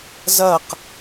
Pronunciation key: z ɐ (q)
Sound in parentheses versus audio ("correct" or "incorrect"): correct